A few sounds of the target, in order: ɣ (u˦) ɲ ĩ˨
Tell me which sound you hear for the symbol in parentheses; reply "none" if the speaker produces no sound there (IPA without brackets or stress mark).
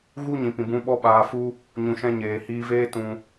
u˦